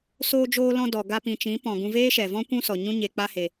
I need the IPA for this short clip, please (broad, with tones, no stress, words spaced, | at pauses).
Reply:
soː˧d͡ʒoː˧lɔ̃˧ dɔ˨ ɡa˧pĩ˨t͡ʃĩ˨˦pɔ̃˨ ɡũ˧veː˦ʃɛ˨vɔ̃˦ kʷũ˦sɔ˨ ɲũ˦ɲe˧k͡pa˦he˧